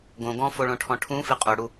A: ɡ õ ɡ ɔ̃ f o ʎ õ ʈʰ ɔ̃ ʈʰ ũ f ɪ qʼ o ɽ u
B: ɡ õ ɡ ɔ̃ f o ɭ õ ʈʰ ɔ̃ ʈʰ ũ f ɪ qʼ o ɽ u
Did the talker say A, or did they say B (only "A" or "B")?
B